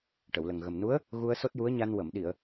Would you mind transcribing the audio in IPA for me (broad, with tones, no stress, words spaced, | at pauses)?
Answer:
ʈə˨˩˨wlə˨˩ŋɣə˨˩mnu˧˥ə̯ | ɣu˧ə̯ so˦˥t̚ju˧˥ə̯ɲa˧n wə˨˩˨mɗi˨˩˨ə̯